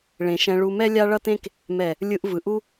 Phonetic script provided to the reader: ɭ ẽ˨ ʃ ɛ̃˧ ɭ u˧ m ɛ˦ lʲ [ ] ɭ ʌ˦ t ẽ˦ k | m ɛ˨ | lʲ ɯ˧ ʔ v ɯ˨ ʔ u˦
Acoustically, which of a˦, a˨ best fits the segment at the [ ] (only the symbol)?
a˦